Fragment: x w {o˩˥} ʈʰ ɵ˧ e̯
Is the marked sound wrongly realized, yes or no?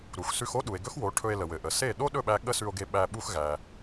no